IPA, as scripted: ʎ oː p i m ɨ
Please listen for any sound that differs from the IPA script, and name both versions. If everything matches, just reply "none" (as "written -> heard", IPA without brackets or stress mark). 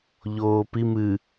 none